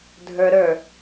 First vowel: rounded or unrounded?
unrounded